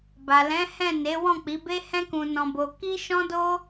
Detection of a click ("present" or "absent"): absent